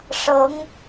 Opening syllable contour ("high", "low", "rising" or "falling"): rising